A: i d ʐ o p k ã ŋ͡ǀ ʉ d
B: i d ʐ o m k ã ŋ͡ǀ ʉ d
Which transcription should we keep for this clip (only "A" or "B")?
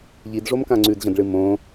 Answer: B